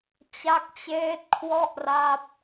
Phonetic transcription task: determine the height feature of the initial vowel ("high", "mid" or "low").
low